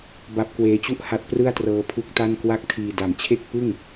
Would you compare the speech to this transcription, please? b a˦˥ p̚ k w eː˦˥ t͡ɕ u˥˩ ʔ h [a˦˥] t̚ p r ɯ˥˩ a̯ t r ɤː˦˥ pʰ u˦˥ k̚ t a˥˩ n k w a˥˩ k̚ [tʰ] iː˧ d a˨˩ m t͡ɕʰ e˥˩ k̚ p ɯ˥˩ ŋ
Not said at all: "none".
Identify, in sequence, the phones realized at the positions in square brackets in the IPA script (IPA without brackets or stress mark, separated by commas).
a˦˥, tʰ